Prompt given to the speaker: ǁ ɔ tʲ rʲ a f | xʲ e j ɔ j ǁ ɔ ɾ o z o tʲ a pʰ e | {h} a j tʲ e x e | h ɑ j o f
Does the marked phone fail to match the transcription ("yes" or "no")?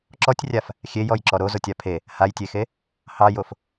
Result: no